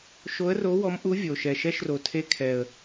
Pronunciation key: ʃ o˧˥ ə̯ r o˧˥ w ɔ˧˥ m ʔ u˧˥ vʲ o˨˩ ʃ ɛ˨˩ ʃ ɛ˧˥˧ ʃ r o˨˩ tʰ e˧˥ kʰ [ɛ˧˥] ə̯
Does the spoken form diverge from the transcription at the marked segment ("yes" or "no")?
yes